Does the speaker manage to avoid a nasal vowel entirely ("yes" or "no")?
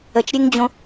no